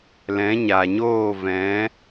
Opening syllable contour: rising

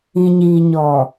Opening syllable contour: low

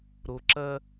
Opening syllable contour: low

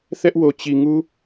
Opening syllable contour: high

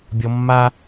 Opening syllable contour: high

